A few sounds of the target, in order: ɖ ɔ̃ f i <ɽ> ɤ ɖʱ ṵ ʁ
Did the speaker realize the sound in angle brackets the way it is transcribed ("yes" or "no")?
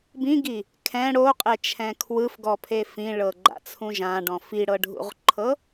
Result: yes